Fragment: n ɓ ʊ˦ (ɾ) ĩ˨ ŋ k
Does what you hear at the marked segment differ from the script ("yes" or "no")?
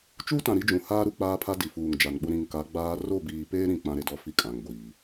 no